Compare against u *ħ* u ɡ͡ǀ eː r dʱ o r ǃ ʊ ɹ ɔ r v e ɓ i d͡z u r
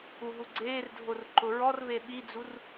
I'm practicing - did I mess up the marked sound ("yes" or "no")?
yes